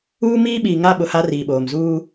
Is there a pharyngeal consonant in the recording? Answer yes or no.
no